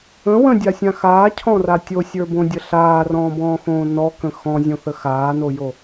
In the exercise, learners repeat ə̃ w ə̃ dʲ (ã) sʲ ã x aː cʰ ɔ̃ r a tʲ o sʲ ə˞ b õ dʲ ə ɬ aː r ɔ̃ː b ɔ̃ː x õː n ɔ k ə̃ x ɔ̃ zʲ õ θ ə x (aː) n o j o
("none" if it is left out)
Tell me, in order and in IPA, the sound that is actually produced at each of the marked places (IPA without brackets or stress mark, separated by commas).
a, aː